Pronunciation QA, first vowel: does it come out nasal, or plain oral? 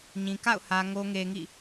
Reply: nasal